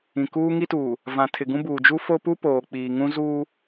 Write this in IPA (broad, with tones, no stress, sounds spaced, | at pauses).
ĩ˨ k uː˦ ŋ i˦ t uː˨ | v ã˨ tʰ ɪ˨ ɡ ũ˦ b uː˨ d͡ʒ u˦ f o˦ p u˦ p oː˨ k͡p iː˨ ŋ ũ˦ z uː˦